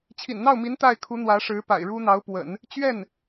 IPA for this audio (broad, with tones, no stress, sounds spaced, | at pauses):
t͡ɕʰ ḭ˨˩ n n̪ ɑ˥˩ ʊ̯ m i˧˥ n t̪ a˥˩ ɪ̯ kʰ u˧˥ n̪ w ä˧˥ ʂ ɻ̩˧˥ p a̰˨˩ ɪ̯ ɻ u˥ n̪ ɑ˧˥ ʊ̯ p w ə̰˨˩˦ n | t͡ɕ ɥ ɛ˥˩ n